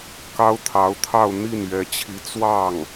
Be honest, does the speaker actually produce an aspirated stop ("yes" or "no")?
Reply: yes